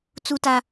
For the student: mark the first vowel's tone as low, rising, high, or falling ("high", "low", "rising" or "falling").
high